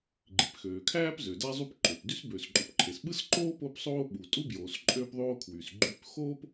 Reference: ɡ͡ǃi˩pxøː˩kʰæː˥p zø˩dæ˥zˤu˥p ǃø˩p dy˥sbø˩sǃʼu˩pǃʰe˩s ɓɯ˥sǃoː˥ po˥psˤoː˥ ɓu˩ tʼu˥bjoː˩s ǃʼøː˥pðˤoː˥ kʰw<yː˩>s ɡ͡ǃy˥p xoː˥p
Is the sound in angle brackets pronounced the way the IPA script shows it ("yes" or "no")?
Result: no